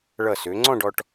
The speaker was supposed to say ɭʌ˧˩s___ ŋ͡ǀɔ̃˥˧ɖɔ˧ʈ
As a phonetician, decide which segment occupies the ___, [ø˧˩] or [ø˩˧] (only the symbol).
ø˩˧